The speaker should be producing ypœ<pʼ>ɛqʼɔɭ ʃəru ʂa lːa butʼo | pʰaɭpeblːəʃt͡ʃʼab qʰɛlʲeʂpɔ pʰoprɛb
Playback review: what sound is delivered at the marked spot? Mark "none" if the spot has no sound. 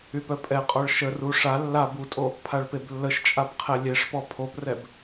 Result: pʼ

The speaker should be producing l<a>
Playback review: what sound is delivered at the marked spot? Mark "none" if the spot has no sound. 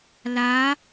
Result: a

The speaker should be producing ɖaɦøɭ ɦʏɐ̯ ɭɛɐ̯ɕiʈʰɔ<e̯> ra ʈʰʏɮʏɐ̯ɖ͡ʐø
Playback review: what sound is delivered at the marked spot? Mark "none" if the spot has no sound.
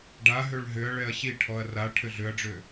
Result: ɐ̯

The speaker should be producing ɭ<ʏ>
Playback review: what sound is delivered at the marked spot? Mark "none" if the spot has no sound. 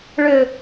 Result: ʏ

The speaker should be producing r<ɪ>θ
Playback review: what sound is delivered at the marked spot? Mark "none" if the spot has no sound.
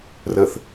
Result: ə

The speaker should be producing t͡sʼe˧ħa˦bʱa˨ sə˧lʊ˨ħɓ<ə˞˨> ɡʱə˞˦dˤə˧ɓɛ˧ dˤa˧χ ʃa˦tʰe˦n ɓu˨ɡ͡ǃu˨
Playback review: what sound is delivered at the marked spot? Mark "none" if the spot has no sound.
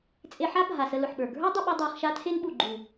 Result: ə˞˨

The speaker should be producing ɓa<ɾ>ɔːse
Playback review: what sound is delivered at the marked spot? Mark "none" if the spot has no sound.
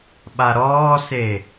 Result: ɾ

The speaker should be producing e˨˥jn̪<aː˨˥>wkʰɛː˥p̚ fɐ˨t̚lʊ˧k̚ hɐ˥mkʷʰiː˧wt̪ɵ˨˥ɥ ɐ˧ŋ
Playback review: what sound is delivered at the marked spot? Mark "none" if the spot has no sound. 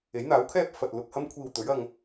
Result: aː˨˥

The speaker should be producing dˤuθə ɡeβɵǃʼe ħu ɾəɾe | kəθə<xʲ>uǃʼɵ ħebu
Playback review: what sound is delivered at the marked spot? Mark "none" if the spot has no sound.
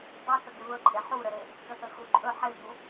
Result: x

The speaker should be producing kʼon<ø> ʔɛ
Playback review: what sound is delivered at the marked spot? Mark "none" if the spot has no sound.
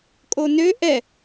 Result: ø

